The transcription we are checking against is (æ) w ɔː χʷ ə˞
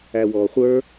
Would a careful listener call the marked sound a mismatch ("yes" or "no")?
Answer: no